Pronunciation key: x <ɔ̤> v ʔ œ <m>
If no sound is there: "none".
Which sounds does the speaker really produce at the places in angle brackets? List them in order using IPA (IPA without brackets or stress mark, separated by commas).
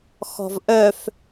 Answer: ɔ̤, f